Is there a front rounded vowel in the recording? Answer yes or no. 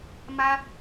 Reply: no